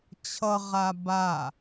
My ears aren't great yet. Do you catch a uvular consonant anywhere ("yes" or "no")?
yes